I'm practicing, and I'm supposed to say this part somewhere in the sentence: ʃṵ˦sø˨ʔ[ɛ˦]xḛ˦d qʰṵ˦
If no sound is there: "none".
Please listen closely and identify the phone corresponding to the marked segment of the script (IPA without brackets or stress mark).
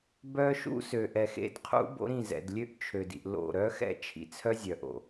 ɛ˨